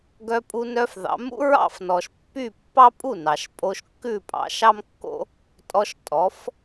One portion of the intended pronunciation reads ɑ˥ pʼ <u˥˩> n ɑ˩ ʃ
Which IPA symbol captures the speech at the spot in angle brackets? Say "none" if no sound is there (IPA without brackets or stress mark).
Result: u˥˩